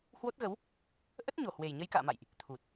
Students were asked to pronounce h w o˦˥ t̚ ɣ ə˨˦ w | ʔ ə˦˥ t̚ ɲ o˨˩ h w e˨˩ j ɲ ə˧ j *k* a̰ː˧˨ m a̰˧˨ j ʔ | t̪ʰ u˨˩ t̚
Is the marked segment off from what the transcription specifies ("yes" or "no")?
no